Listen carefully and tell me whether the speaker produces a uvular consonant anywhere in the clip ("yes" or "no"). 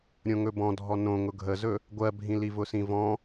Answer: no